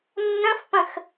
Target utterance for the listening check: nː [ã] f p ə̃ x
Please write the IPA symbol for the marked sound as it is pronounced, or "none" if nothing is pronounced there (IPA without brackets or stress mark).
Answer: ə̃